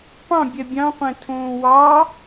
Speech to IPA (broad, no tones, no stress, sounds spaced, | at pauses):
p ɑ̃ bʲ ɛ bʲ ɑ̃ qʷ ɛ̃ tʰ õː w ɑ